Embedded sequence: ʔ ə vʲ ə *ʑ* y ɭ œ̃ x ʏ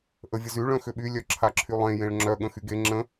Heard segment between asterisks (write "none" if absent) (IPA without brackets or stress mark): z